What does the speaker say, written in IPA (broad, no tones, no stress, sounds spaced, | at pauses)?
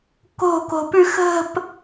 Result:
k o̤ k o̤ p ʉ x ə̤ p